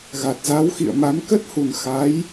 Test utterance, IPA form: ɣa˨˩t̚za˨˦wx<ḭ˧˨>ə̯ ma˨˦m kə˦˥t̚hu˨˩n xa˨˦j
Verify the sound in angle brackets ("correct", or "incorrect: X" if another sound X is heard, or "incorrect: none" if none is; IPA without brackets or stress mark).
correct